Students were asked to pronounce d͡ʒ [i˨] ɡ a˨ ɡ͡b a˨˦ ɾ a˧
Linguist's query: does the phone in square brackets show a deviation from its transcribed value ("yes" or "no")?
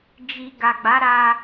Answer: no